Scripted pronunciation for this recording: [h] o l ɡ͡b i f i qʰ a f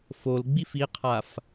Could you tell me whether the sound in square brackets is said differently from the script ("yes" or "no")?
yes